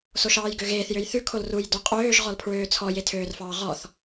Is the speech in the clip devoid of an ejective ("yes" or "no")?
no